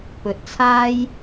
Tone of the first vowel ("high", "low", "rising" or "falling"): low